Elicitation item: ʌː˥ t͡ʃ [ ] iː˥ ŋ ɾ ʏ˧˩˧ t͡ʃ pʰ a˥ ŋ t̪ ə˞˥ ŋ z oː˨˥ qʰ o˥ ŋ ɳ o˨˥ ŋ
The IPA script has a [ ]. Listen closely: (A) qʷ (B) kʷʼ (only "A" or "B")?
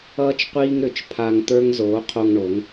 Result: A